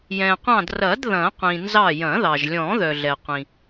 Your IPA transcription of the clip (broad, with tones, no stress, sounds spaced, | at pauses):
j ɛ̃˩ qʷ ɑ̃˧˩ d r ɐ˨˩˦ d ð ɐ̃˨˩˦ qʷ ĩ˩ n z ɑ˧˩ j ɐ̃˨˩˦ ð ɑ˩ ʒ lʲ ɔ̃˨˩˦ ð œ˩ ɮ ɛ˩ qʷ ĩ˩